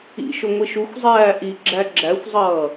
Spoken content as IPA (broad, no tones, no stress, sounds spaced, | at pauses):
ḭ ʃ ʊ ŋʷ i ʃ u xʷ zˤ æː ʔ i ɡ͡ǁ æ ɡ͡ǁ æ xʷ zˤ ʌː